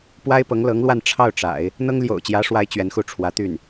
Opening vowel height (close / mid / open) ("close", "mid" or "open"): open